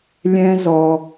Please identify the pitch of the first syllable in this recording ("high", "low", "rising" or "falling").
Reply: high